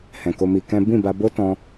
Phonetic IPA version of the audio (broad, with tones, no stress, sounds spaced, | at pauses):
h ɛ̃˨ k o˧ m i˧ k ɛ̃˦ b ĩ˦˨ b a˧ b o˦ t ɔ̃˧